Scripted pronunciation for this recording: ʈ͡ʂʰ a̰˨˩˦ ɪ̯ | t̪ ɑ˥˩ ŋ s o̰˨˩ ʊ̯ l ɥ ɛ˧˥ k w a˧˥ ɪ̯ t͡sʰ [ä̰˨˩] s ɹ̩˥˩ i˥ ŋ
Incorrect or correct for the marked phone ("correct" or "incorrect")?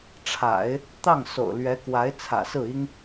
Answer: correct